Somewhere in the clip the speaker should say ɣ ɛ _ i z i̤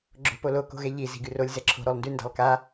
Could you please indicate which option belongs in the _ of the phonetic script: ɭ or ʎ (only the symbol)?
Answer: ʎ